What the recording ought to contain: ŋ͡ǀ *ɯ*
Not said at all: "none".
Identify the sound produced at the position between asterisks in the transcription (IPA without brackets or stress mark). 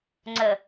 ə